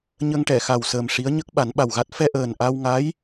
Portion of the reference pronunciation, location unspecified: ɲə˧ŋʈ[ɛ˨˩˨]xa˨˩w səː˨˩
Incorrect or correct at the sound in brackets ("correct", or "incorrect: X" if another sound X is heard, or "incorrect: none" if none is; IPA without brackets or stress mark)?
correct